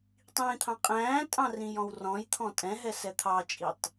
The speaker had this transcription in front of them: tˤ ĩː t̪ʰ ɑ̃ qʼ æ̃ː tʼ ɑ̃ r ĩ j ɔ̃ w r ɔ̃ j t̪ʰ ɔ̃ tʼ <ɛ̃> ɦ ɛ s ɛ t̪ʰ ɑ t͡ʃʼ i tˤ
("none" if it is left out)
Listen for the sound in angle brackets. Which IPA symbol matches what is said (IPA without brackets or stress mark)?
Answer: ɛ̃